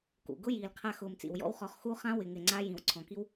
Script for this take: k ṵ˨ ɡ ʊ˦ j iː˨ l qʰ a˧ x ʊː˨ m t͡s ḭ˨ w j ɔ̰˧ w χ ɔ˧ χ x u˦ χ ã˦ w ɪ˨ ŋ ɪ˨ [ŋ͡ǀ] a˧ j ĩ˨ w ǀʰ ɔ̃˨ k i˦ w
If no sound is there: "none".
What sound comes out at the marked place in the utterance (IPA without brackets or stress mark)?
ŋ͡ǀ